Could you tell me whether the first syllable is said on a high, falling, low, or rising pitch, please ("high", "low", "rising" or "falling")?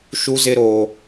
high